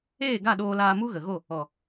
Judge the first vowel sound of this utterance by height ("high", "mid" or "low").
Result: mid